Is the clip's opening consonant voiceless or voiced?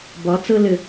voiced